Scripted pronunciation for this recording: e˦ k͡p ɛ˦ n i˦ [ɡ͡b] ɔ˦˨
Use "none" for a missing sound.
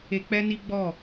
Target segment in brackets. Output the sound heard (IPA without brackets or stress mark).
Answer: ɡ͡b